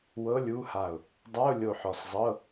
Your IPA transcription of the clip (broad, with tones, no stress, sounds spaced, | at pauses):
w ɤ˧˥˧ lʲ u˧˥˧ h a˧˩ ʊ̯ | dˤ a˧˥˧ ʊ̯ lʲ o˧˩ ħ ɔ˧˩ s zˤ ɤ˧˥˧